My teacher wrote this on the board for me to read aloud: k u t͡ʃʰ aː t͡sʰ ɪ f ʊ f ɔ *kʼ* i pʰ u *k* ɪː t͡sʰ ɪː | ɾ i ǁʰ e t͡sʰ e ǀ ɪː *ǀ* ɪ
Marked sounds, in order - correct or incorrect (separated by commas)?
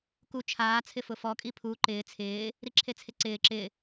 correct, incorrect, incorrect